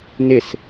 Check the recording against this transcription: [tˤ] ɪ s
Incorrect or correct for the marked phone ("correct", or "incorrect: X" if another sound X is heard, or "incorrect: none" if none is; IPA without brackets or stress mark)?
incorrect: n